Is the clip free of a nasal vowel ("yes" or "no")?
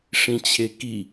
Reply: no